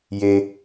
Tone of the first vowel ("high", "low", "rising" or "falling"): low